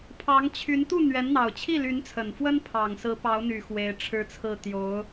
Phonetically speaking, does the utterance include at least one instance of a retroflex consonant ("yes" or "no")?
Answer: yes